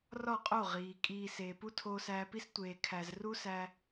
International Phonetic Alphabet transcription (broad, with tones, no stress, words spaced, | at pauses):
rɒ˦˨qʼo˦˨ ʁiː˨ kʼiː˨ seː˨pu˦ tʰoː˧sæː˧pi˦s tʷeː˨ kʰæ˨z ru˦sæ˧